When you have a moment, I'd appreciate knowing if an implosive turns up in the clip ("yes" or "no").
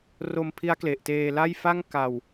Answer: no